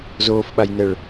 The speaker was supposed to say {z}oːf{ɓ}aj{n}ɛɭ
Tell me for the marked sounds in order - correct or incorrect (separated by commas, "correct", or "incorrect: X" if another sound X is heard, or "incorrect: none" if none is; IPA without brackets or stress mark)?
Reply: correct, correct, correct